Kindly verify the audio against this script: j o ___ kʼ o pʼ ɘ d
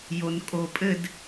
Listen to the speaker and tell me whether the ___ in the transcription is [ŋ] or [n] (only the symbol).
n